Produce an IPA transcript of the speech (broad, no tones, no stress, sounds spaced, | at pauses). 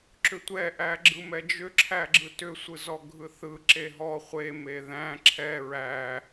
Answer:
ǁ ʏ tʷ ɛ ʔ æ ɡ͡ǁ ɯ m ɛ d͡ʒ ʏ ǁʰ æ ɡ͡ǁ ɯ t ʏ sʷ ɯ z ɔ ɡʱ ɯ θ ɯ ǁ e ɦ ɔ χʷ e m e ð æ̃ ǁʰ ɛ ɹ æ